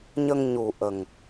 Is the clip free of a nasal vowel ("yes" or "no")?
yes